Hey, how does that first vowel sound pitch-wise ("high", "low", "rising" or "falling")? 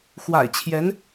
low